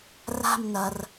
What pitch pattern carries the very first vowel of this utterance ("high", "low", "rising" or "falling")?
falling